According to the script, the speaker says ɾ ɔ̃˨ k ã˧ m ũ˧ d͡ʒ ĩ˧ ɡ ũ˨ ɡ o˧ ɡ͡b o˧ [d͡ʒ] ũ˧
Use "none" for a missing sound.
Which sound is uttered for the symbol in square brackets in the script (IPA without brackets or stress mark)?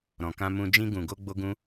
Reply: ɡ